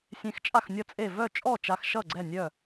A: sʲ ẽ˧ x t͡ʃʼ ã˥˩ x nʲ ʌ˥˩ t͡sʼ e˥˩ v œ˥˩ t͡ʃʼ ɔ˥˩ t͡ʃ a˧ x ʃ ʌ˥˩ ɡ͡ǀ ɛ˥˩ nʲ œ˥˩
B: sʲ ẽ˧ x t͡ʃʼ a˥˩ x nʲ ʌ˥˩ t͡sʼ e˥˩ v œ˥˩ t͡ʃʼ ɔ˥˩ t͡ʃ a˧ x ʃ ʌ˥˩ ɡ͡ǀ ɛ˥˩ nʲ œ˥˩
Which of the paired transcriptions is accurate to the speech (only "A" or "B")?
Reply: B